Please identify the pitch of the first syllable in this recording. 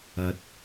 rising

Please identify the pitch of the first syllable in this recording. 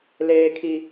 low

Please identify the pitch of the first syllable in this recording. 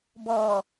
low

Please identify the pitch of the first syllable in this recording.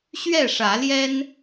falling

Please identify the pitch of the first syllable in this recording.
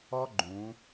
high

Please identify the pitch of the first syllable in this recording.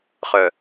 low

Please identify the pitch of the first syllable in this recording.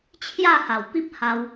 falling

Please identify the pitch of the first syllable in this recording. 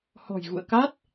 low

